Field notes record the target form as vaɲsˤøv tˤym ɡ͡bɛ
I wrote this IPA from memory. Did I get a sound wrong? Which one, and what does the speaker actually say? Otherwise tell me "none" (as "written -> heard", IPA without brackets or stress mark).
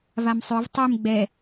ɲ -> m